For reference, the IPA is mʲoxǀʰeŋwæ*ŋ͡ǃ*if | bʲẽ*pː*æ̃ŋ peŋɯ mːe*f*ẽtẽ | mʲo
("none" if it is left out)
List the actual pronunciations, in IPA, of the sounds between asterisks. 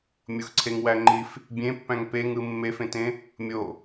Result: ŋ͡ǃ, pː, f

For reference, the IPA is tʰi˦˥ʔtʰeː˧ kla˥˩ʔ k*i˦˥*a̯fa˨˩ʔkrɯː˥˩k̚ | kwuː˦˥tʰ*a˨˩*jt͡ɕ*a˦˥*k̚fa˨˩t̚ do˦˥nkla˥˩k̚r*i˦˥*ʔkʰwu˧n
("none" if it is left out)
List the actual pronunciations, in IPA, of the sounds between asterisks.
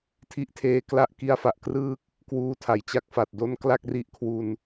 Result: i˦˥, a˩˦, a˦˥, i˦˥

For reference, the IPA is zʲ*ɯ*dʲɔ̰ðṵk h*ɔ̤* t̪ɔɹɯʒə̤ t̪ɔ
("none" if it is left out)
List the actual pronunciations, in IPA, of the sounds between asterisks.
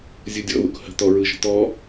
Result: ɯ, ə̤

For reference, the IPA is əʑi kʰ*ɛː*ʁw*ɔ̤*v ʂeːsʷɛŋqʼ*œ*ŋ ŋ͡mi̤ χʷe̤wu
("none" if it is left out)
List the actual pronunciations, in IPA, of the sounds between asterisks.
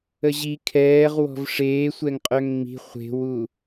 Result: ɛː, ɔ̤, œ

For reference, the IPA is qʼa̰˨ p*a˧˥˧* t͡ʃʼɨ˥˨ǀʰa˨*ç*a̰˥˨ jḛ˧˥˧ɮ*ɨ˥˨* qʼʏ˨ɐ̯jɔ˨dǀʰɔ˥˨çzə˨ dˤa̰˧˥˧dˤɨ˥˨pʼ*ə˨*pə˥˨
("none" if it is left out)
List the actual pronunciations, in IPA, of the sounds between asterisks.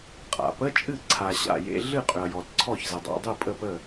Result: ə˧˥˧, ɕ, ɨ˥˨, ə˥˨

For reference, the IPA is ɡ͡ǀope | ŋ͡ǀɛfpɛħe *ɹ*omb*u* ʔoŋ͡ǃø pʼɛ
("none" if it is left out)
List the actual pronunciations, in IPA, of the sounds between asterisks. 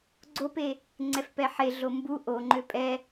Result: ɮ, u

